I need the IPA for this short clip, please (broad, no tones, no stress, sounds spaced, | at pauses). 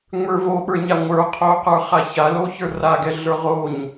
ŋ͡m ə˞ v o ɓ ə˞ ɲ a ŋʷ ə˞ qʰ o q ə˞ χ a ç a l o ç ə˞ r a ɡ ɛ ɮ ə˞ ʁ o ɲ